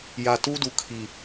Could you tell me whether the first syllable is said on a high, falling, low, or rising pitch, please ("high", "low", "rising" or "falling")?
low